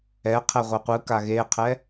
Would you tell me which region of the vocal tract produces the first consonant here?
uvula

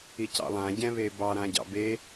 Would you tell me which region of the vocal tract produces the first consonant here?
palate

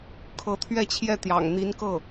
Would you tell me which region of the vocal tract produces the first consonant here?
velum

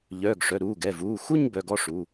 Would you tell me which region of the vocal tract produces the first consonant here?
palate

